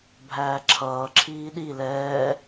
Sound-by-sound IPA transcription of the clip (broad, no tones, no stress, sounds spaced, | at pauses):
bʱ æː ǁʰ ʌː ǁʰ iː ɗ i l ɛː